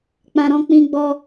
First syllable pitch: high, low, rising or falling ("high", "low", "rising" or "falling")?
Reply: low